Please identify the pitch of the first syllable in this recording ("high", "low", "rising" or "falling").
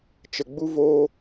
low